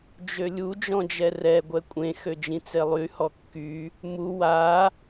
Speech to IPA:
d͡ʒ ø lʲ u d͡ʒ ɔ̃ d͡ʒ ɛ r ɛ ɡʷ ɛ kʷʼ ẽ x ø d͡ʒ ĩ t͡s e lˠ y h ɔ kː y | m u w a

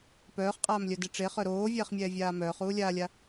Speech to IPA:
p œː χ qʼ aː m lʲ œ d e ʈ͡ʂ e χ œ ɾ oː vʲ ɛː χ mʲ ɛː vʲ aː m œː χ uː lʲ aː lʲ a

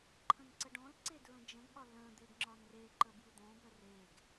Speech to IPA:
ǃʰ ə̃ n ǀ ə ɖ ɔ̃ l ǀ e d ɹ ə̃ d͡ʒ ə̃ ɡ ɠ ɒ l ə̃ d̪ e ɡ ŋ͡ǁ ɒ n r e ǃ ə b j ɯ d̪ ɔ̃ b œ r e ɡ

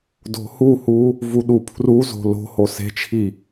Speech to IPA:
d o̤ h u h u | v u ɗ u pʰ r u z o̤ l o̤ h o s e̤ t͡ʃʰ i

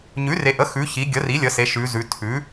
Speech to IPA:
ɲ ʉ˩˥ r e˩˧ ʔ ə˩˥ x ʉ˩˧ ç i˩˧ ɡʲ ə˩˥ r i˩˥ lʲ ə˩˧ s e˩˧ ʃ ʉ˩˧ z ʉ˩˧ tʰ ʉ˩˥

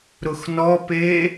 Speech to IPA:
ɾ ʊ x n ɔ p e

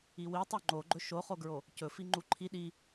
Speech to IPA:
i w i tˤ u ŋ͡ǃ o ɡ͡ǃ ɵ ʃ o χ o ɡ ɹ o | c ɵ f i ŋ͡ǃ u ǃʰ i ɗ i

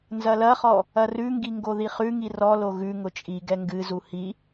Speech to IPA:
n z ɐ l ɐ χ ɔ | ɐ r ʉ ŋ ɡ i ŋ ɡ o ð i χ ʉ ŋ i r ɔ l o ɣ ʉ ŋ ʊ t͡ʃʼ i ɡ ɛ ŋ ɡ ɨ z u h i

